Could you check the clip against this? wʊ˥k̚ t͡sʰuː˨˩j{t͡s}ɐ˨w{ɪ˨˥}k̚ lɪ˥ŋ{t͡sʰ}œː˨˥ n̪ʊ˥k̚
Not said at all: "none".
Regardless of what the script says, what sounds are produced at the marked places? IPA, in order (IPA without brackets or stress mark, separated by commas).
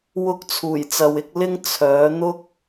t͡s, ɪ˨˥, t͡sʰ